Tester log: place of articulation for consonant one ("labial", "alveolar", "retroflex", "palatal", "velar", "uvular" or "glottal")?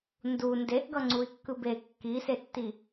alveolar